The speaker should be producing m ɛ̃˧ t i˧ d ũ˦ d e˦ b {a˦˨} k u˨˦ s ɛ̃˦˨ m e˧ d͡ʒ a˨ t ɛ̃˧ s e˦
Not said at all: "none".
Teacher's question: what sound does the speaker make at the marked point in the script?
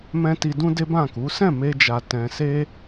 ã˦˨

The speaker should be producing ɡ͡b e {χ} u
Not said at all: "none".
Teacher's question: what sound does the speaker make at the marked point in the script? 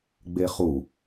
χ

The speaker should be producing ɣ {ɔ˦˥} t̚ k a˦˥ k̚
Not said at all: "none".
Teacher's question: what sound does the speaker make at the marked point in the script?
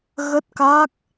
ə˦˥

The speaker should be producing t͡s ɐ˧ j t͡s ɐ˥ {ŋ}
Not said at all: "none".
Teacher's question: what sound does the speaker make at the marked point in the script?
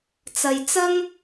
ŋ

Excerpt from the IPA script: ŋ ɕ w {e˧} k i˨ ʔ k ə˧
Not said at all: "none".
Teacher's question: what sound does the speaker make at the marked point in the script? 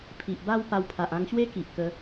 e˦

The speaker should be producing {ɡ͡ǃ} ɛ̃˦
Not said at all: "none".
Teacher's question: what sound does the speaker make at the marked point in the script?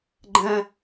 ɡ͡ǃ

